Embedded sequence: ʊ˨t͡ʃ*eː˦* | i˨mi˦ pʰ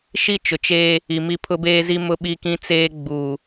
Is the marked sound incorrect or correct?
correct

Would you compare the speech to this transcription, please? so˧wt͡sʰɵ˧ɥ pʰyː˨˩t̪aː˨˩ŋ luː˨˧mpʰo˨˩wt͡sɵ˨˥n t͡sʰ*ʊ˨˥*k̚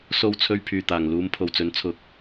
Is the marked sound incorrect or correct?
correct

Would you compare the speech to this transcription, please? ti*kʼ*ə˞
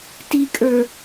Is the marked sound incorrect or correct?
correct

